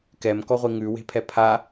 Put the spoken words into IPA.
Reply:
kɛmkɔʁʷi ŋʉwe̤pʰɛ pʰa

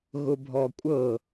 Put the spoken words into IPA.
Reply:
ɣʊbʱɔkʷʼɤ

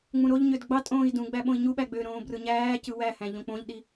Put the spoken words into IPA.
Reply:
ŋ͡mũɾoʎɲød ɡ͡bɑtʼõːi̯ dũ ɡ͡bæɓõi̯ɲuɓæ ɡ͡bøɾõː brɯɲæːcɯ wæhæ̃ ʎõk͡põʎɗi

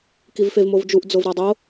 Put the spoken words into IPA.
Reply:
kivfevmovd͡ʒuʔ d͡zovɾadˤo

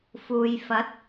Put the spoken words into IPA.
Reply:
fuː˨jfɐ˨˥t̚

